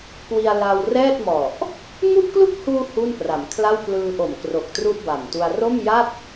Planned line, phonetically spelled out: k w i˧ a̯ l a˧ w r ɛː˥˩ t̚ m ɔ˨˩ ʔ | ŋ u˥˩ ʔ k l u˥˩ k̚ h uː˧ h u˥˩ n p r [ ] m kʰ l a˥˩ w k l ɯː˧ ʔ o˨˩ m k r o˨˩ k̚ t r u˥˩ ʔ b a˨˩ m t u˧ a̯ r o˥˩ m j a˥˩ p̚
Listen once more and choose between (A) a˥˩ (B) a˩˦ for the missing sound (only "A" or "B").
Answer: B